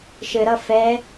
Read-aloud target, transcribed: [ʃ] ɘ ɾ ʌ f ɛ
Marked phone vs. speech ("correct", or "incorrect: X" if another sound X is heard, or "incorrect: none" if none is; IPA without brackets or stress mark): correct